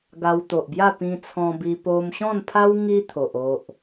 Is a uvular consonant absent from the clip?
yes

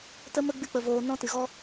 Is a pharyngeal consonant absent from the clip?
yes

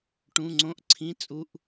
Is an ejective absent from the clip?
no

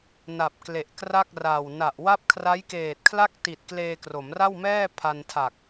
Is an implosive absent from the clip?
yes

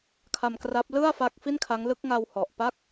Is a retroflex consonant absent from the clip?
yes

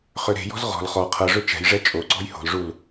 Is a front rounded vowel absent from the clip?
no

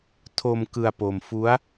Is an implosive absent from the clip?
yes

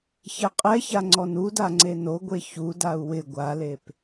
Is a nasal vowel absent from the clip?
yes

